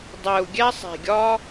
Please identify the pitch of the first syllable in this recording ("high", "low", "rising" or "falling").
low